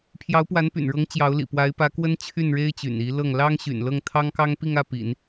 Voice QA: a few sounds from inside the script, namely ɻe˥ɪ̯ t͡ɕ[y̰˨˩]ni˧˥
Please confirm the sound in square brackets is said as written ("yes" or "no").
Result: yes